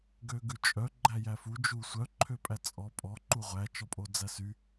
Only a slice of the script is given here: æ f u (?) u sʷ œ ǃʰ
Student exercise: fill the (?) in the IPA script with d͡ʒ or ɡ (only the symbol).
d͡ʒ